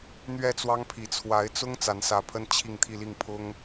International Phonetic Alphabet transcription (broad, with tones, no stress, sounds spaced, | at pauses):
n̪ ɥ ɛ˥˩ t͡s w ɑ˥ ŋ pʰ i˧˥ t͡sʰ w a˧˥ ɪ̯ t͡s ʊ˥ ŋ t͡s a˧˥ n s ä˧˥ pʰ ə˥ n t͡ɕʰ i˥˧ ŋ t̪ʰ i˥˧ l i˥˩ ŋ pʰ ʊ˥ ŋ